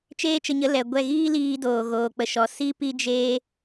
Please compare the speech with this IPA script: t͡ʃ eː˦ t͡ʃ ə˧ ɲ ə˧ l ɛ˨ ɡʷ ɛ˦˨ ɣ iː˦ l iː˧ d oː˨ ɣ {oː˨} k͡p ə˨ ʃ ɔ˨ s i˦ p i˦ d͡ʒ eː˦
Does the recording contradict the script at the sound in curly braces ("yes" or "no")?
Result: no